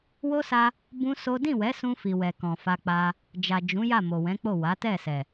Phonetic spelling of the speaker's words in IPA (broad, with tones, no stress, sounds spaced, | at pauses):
w o˦ s a˧ | b ũ˦ s o˦ d ĩ˦˨ w ɛ˨˦ s ũ˧ f i˨ w ɛ˨ k ɔ̃˨ f a˧ k͡p a˧ | d͡ʒ a˨ d͡ʒ ũ˨˦ j a˦˨ m o˨ w ɛ̃˨˦ k͡p o˦˨ w a˨˦ t ɛ˦˨ s ɛ˨